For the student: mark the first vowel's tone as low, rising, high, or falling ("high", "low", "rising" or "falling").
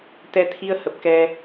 rising